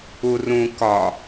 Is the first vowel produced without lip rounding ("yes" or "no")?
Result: no